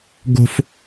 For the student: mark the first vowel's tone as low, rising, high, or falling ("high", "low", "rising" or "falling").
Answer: high